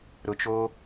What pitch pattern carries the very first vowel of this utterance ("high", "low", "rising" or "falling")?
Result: high